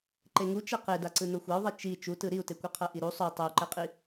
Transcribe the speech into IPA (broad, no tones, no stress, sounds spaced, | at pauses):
ǃ e ŋ u t͡ʃ ɛ q e d a ǀ ɯ n o xʷ a u̯ ðˤ i t͡ʃ i t͡ʃ u t ɯ ɾ i u̯ t e kʷ ɛ qʰ ɤ ʔ i ɾ u sˤ o tˤ e u̯ ǃ ɛ qʼ i